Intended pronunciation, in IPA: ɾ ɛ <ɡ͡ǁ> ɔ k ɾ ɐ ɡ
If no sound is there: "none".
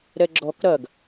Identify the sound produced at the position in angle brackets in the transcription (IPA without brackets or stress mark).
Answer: ɡ͡ǁ